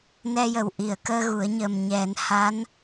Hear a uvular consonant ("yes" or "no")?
no